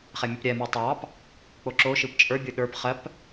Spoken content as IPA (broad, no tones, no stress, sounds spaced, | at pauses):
χ ɛ mʲ ɯ p ɾʲ ɛ m ɯ tˤ ɑ p | k͡p o ǁ o ʃ ɯ p t͡ʃʼ ə˞ bʲ ɯ ɗ ə˞ p χ ɜ p